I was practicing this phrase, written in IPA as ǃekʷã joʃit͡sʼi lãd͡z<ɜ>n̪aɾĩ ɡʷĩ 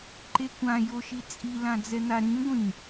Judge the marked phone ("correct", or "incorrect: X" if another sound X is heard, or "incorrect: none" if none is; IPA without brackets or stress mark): incorrect: ɛ